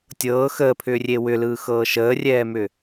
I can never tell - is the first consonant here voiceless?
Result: yes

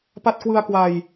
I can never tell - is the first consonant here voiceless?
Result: yes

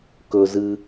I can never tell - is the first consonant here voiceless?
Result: yes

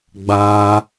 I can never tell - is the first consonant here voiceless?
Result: no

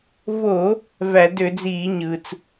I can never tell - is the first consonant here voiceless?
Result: no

